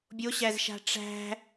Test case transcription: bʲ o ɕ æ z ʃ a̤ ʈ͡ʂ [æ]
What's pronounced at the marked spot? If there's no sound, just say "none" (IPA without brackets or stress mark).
æ̤